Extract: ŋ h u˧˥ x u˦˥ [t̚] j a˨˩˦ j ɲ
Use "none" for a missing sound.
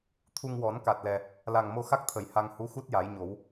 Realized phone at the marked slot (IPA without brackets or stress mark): t̚